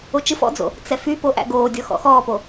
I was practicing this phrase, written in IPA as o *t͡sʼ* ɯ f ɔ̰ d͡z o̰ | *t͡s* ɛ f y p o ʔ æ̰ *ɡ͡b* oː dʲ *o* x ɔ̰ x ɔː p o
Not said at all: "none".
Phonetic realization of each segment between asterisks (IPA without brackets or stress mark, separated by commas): t͡ʃ, t͡s, ɡ, ɔ